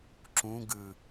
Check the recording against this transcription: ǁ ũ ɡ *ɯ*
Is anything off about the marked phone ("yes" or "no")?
no